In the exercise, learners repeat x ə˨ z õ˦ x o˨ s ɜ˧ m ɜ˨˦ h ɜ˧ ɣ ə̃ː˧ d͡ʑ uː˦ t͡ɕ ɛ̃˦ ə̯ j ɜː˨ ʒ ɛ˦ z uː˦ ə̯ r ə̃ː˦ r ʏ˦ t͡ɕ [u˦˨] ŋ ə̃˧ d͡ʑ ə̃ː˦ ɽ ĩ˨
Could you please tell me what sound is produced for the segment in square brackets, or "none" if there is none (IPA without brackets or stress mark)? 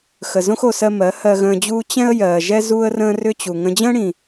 u˨